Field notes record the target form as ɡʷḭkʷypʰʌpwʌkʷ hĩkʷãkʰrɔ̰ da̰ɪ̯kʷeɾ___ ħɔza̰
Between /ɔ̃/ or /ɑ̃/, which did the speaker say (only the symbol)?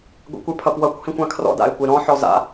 ɔ̃